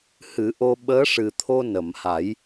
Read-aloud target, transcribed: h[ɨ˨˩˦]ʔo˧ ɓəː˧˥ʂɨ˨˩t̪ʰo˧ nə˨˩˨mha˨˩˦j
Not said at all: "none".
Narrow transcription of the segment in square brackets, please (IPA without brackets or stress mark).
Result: ɨ˨˩˦